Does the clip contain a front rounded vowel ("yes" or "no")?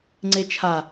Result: no